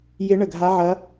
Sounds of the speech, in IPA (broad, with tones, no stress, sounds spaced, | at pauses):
j ɪ˦˥ ɳ ə˦˨ ɡʱ a˦˥ ʕ ɐ˦˥